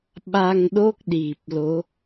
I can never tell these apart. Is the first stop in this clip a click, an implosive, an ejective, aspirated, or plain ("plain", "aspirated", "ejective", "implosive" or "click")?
implosive